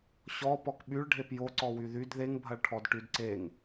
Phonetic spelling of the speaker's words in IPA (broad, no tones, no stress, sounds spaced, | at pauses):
ɕ ɔ p ɔ k ɓ y ɭ ɖʱ e p j o ǀ ɔ w y ð y d ð e ŋ bʱ ɐ ɭ ʈʰ ɔ d ʈ y d ǀ e ŋ